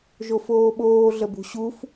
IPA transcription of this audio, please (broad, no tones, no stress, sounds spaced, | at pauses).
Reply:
ʒ o f oː ɓ oː ɮ ə b ṳ ɕ u f